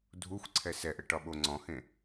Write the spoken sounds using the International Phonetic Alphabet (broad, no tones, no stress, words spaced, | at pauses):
dʱuxʷ ǀʰɛsɛʔə ʈɒɓoŋ͡ǀɔ̃hẽ